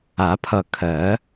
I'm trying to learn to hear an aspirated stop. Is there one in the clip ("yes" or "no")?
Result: yes